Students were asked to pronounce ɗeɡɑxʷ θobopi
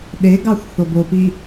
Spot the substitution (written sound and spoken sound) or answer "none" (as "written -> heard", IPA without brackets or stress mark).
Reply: none